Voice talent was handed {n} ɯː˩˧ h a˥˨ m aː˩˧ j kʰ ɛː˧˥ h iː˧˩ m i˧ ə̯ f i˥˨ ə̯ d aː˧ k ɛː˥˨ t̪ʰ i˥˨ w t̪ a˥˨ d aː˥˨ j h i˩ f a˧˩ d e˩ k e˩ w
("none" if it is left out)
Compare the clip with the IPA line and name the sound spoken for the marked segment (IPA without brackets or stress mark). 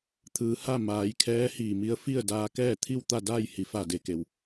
t̪ʰ